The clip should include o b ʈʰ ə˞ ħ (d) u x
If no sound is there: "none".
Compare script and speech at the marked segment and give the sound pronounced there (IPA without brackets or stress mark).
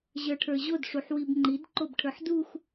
d